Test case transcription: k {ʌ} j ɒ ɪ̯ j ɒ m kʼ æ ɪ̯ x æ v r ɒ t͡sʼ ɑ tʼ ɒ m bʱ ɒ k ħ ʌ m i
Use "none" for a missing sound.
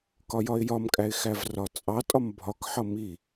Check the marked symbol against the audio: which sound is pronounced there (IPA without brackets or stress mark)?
ɒ